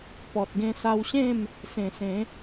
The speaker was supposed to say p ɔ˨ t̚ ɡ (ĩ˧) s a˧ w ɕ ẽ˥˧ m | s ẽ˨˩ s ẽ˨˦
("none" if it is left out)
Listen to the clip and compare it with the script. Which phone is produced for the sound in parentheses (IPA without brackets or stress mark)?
ẽ˧